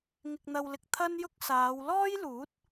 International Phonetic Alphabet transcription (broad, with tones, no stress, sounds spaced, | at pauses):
ŋ ɪ˧ k̚ n̪ ɐ˧ w l ɪ˧ k̚ t̪ʰ ɐ˥ n j ʊ˥ k̚ s aː˨˧ w l ɔː˥ j l uː˨˥ t̚